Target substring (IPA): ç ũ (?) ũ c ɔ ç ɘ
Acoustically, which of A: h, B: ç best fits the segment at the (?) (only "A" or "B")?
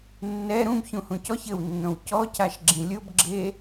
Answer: A